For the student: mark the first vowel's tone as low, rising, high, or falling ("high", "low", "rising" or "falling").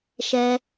high